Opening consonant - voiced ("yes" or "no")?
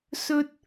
no